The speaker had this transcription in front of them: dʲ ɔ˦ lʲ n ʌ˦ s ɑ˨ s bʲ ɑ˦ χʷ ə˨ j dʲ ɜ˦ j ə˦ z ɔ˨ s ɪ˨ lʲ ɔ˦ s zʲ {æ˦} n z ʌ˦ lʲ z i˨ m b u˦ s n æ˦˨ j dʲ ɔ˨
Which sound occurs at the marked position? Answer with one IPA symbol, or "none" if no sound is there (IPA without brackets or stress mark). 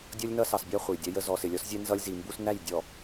ɛ˦